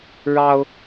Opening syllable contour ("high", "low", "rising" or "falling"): high